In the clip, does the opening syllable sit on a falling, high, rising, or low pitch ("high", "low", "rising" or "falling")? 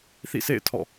falling